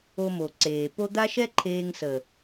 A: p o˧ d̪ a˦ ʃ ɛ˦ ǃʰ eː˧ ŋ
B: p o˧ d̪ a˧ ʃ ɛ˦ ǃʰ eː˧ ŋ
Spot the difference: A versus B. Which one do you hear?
A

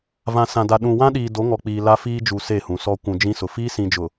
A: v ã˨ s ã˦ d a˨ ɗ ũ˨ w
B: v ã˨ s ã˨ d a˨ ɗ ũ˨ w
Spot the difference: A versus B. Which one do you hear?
B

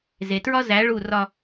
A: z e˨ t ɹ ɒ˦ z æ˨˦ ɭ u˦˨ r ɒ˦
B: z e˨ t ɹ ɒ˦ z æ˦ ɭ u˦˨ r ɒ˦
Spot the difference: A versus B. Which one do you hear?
A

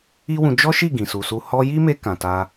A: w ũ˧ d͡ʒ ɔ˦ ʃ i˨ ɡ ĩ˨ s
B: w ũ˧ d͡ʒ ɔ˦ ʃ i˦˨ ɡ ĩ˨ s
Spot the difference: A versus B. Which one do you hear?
B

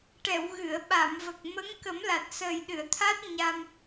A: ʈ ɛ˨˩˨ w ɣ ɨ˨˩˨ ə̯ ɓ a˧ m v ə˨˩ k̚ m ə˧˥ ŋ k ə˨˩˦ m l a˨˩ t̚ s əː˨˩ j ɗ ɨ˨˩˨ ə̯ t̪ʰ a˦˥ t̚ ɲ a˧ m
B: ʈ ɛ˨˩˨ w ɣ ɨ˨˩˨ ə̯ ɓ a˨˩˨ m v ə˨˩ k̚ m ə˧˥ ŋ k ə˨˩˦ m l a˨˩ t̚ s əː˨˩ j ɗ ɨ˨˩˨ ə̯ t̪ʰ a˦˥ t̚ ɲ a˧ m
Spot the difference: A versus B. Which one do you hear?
B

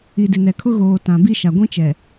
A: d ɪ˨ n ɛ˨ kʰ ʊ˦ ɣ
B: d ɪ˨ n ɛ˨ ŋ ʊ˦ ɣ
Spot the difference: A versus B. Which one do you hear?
A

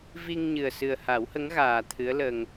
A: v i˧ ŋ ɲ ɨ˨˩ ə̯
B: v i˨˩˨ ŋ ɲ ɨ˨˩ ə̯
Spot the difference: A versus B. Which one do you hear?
A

